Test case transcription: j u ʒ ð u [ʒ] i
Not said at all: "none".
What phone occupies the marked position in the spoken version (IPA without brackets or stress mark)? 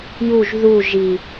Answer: ʒ